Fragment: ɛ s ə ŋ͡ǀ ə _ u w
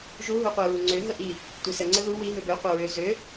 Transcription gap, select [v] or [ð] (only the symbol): ð